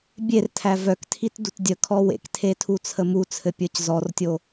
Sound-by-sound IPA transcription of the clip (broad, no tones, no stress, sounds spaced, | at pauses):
bʲ e r tʰ æ v œ k tʰ i t d u t dʲ ə kʰ ɔ w ḛ k tʰ e tʰ u t͡sʰ ə m u t͡sʰ ɘ pʲ ə˞ c z ɔ r tʲ o